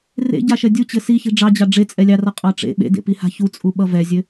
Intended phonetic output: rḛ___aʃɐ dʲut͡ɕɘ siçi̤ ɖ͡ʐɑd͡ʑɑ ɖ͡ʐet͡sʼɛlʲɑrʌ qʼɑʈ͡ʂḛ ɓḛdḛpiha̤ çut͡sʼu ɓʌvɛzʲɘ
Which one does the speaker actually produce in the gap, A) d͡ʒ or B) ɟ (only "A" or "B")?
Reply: B